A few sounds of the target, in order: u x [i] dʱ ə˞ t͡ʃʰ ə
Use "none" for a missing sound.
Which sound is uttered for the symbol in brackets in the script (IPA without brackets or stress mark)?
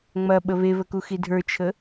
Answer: i